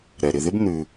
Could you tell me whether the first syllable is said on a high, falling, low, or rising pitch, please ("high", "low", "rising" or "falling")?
low